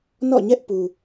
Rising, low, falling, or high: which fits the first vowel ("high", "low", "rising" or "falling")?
falling